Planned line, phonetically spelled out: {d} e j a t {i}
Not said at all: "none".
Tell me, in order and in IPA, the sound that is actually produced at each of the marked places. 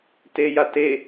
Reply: t, e

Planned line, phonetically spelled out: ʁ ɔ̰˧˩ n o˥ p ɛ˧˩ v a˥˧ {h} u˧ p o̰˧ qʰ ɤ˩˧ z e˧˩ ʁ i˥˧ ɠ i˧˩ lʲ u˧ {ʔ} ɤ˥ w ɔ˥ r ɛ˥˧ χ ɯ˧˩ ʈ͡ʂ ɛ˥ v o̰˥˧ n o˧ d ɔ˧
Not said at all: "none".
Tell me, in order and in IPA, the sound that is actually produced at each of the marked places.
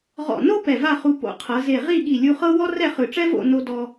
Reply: χ, χ

